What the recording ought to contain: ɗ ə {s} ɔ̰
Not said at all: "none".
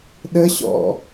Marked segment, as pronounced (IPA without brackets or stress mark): ɕ